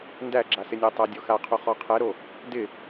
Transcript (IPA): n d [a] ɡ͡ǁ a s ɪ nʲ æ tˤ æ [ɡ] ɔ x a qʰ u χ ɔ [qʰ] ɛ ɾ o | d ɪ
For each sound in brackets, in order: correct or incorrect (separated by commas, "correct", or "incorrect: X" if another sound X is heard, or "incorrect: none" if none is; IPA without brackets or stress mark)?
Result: incorrect: æ, incorrect: dʲ, correct